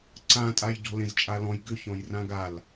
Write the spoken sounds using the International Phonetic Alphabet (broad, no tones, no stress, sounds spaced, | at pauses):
ǀ ã tʼ a j ɟ ɔ̤ l ẽ z t͡ʃʼ a l ɔ̃ j ɡ ʏ ç ɔ̃ j r ã ɡ a l